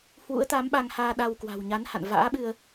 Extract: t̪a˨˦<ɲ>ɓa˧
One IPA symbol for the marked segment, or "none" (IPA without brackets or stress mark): m